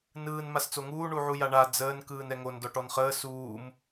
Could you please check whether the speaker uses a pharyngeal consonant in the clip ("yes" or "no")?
yes